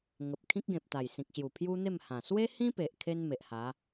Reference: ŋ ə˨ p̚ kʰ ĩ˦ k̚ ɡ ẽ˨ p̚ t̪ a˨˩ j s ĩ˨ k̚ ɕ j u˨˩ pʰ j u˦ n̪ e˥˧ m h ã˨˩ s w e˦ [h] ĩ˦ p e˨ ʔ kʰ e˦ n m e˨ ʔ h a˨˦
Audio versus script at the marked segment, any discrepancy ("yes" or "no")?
no